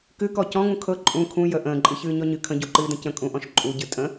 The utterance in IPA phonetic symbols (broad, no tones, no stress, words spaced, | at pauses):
kɨkɔ cɔ̃ŋũ kʰɤ ǃʼũ kʰũ jə ʔə̃ːǃʼɨçɨː ɲɔɲɨ kʰə̃ɟuǃɨːdə̃ cə̃ kʼũʔɔ̃ʃ ǃʼuɟɨ tʼə̃